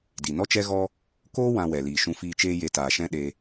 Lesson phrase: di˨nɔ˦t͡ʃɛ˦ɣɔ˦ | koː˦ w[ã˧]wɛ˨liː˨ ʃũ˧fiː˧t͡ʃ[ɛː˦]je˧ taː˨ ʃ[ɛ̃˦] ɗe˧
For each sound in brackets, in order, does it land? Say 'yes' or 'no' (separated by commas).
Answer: yes, no, yes